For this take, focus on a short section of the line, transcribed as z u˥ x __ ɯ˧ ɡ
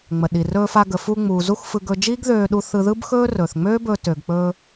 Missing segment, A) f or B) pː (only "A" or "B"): A